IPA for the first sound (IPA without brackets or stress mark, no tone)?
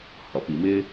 h